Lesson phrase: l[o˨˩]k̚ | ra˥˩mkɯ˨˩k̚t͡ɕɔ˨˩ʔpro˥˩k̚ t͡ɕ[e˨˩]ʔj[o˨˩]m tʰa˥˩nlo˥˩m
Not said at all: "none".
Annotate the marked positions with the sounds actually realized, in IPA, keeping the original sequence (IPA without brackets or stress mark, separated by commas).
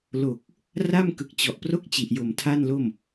o˨˩, i˨˩, o˨˩